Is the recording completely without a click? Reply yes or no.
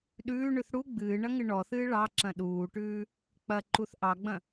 no